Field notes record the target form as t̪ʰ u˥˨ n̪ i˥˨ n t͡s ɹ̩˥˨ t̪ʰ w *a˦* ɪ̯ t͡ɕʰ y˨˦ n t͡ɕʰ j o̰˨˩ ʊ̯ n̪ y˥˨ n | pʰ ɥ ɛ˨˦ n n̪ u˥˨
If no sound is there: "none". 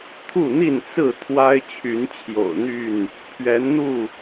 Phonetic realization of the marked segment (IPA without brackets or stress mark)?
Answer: a˦